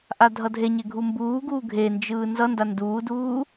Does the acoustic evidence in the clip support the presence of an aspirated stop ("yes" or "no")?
no